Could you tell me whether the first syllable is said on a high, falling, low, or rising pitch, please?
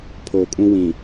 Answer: low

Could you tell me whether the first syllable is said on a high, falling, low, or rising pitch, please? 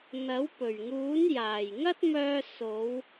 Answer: rising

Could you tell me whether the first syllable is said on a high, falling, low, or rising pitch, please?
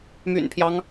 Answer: low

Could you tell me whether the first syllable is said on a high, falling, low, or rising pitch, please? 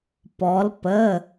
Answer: rising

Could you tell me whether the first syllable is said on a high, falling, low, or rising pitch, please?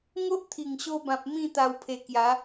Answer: high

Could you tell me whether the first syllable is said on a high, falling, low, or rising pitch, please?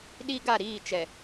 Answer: high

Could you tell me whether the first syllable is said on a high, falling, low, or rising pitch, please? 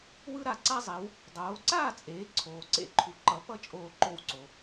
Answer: high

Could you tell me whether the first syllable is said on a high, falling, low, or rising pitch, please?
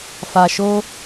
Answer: low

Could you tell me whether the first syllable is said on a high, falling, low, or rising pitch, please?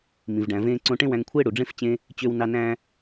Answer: low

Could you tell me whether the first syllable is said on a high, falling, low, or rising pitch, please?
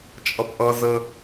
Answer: high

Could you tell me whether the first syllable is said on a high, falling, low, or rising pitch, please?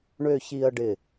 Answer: falling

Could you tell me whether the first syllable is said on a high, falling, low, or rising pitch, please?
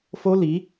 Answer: high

